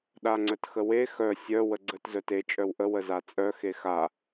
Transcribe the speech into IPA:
ɗ a ŋ͡ǀ œ t x ə w e x œ sʲ œ w ə ɡ͡ǀ ə t z œ t e t͡ʃʼ œ w ʔ ə w ə z a t͡sʼ œ x e x a

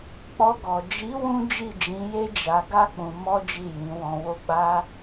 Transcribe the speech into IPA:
k͡p ɔ˧ ɡ ɔ˨ d͡ʒ i˨˦ w ũ˦ d͡ʒ i˦˨ d͡ʒ ĩ˨˦ j e˦ d͡ʒ a˧ ɡ a˦ k͡p ũ˧ m ɔ˦ d͡ʒ i˦˨ j ĩ˨˦ w ɔ̃˧ w o˦ ɡ͡b a˦

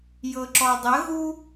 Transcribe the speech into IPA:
j ɤ ǁ ɔ dˤ ə ɣ u

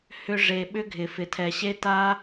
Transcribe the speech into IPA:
h ʏ˧ ʐ e˨ ɓ ʏ˦ ɡʱ ɪ˨ f ɪ˨ tʰ ɛ˨ ɕ e˦ t a˦

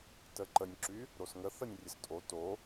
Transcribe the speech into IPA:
t ə ǃ ə nʲ ǁ y | ɾ o s ŋ ə θ ə nʲ rʲ ə s tʼ o t o

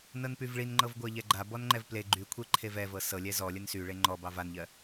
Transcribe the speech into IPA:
n ɤ n p y v ɭ i n ŋ͡ǃ ɤ v ɡʷ ɜ ʎ ɛ ɡ͡ǃ a b ɔ n ŋ͡ǃ ɛ v p l e ɡ͡ǃ y kʷʰ e ǃʰ e v ɛ v ɤ s ɤ lʲ ɛ z ɔ lʲ ə n s y ɭ e ŋ͡ǃ ɔ b ɑ v a n ʎ ɜ

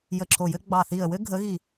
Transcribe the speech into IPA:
j ə˧˩ ǁʰ o˧˩ j ɘ˥ ɡ͡b ɑ˧˩ θ i˧˩ ə̯ w ɘ˥ ɡʱ ə˨˥ ɣ i˧˩

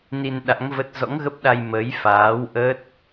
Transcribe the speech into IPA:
n i˧ n ɗ a̰˧˥ ŋ v ə˦˥ t̚ z ɔ̰˧˥ ŋ ɣ ə˦˥ p̚ ɗ a˧ j m ə˨˦ j f aː˨˦ w ʔ ə˦˥ t̚

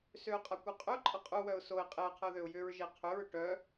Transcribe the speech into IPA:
s ø ʊ̯ qʼ a kʷ œ qʼ ʏ ʊ̯ ǃʼ ʌ qʼ u w œ ʊ̯ s o ɪ̯ qʼ e ə̯ qʰ ə ʊ̯ ð ø ʊ̯ j ʏ ɹ ʒ e qʰ ʏ ɹ ʏ ʈ œ

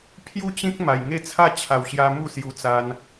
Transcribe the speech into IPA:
pʰ j u˥˧ t͡ɕ ĩ˦ k̚ m a˨˩ j ŋ e˥˧ t͡sʰ a˥˧ t͡ɕʰ a˨˩ w ɕ j a˧ m u˥˧ s j u˧ t͡s a˧ n

